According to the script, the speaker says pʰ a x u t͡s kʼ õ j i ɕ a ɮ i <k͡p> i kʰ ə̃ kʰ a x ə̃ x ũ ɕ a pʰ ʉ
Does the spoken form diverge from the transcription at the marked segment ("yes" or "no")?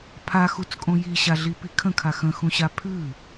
yes